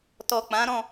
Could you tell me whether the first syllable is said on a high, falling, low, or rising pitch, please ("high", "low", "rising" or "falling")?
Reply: low